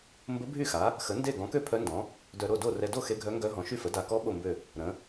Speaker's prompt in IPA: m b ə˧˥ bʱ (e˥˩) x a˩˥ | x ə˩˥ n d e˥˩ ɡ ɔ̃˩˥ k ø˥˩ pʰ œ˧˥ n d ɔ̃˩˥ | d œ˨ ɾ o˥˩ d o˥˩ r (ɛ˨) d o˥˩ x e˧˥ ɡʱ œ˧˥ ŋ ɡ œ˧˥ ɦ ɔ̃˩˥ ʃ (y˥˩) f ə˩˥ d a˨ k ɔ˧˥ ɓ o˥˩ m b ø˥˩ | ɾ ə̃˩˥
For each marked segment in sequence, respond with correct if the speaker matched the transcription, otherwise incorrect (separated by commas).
incorrect, correct, correct